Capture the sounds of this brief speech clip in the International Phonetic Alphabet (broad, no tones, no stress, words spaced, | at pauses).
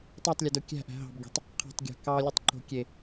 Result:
tˤetˤlʲødo kʲæ̤ʔæ̤ ɦɑ̤bɡʲo̤tˤ | qʰɑ̤tˤɡʲæ̤ kɑlʲɯtˤǃo̤ kʲe